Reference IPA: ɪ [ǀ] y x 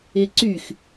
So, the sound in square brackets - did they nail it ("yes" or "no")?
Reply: yes